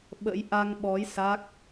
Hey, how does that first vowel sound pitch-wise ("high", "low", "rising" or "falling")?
rising